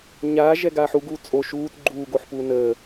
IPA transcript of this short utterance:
ɲ aː ʒ ɛ ɡ aː ħ u ɡ uː t͡sʼ o ʃ uː t ɡ͡ǃ uː ɡ o ħ p uː n əː

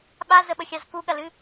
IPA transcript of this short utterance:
ɓ a z ə ɓ ə xʲ ɑ z k u ɠ ɐ l ɨ

